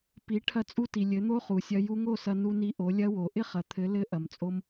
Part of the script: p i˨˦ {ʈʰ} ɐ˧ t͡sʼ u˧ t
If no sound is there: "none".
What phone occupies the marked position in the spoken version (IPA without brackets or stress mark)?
ʈʰ